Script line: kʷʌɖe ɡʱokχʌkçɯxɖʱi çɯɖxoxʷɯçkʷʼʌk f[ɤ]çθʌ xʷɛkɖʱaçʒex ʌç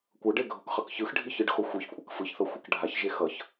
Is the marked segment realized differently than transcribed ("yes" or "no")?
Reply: yes